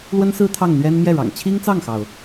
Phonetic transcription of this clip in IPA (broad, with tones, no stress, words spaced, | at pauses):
lwə˥nsɹ̩˥ t̪ʰɑ˥˩ŋn̪ɥɛ˥n mjɛ˥˩ɻɑ̰˨˩ŋ t͡ɕʰi˥ŋt͡sɑ˥˩ŋxɑ˩ʊ̯